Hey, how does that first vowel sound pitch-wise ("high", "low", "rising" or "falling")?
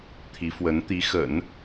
rising